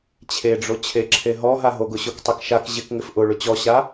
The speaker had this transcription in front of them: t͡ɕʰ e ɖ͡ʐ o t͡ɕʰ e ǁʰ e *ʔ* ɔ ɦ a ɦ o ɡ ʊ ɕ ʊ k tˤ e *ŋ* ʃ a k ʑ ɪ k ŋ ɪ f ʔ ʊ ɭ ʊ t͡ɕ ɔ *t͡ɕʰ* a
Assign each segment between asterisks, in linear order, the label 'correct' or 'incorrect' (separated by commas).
incorrect, incorrect, incorrect